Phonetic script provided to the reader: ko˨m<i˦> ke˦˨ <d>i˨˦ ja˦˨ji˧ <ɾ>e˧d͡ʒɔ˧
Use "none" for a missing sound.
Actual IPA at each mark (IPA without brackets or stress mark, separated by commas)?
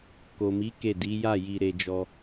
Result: i˨˦, d, ɾ